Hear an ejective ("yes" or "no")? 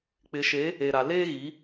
no